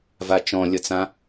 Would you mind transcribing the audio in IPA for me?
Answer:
vat͡ʃɔ̃lʲʌt͡sã

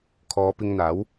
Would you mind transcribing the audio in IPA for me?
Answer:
kʰɔː˨˧pɪ˧ŋn̪aː˨˥w

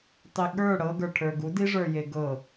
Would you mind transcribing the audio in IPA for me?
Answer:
tˤiɠə˞ ɽɤ ɡə˞ʈʰə˞ɡu diʐə˞je ɡɤ

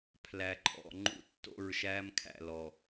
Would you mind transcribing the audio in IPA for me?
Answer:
pʰlæ˨ǃʼɔ̰˨ ŋ͡ǃṵ˦tːo̰˦˨ɹʃæ˦m kʰæ̰˨lɔ˨

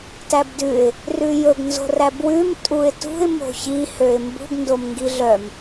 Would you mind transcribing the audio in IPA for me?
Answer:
tæbdʉɪ̯ | rʉjɵɡ nzo̤ræbwʉm tʼuɪ̯tṳɪ̯ mo̤çi høɪ̯mbṳɡ ndomŋɡiɮœm

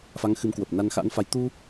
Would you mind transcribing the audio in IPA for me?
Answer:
fa˨˦ŋxɨ˨˦mkwə˨˩p̚ na˧nxa̰˧˥nfa˨˦j t̪u˧

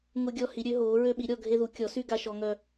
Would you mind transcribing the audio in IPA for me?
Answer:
ŋʊ˦ɡʲɔ˦ hi˨˥ɾʲø˨˥ɦoː˨˥ ɹø˦ɓi˨˥ ɾʲɔ˦ ɡʱe˦ðu˨˥ kʲɔ˨˥sy˦ ɡa˦ʃɔ˦ŋœ˦

